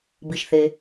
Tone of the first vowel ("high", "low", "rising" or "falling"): low